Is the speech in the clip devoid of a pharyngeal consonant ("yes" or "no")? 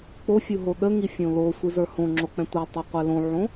no